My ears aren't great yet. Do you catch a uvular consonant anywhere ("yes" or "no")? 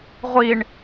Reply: yes